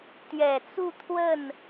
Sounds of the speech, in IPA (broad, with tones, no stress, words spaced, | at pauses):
t̪ɥɛ˨˩t͡su˥˧ t̪ʰwə˥˩n